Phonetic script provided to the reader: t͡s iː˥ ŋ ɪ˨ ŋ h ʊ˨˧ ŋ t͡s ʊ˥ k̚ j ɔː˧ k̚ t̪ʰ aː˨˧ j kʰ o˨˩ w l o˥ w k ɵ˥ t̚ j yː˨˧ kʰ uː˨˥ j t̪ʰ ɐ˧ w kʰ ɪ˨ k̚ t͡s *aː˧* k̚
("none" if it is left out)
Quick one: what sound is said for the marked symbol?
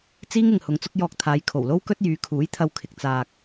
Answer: aː˨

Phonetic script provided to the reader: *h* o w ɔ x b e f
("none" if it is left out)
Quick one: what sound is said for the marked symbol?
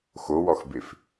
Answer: x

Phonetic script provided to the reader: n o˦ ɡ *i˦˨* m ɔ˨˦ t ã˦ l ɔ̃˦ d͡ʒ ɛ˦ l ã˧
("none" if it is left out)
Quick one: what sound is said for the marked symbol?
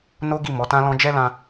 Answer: i˦˨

